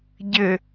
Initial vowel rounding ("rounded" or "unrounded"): unrounded